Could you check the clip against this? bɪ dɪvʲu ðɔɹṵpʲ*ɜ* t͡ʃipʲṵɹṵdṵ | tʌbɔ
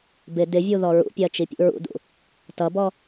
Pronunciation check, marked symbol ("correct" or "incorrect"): correct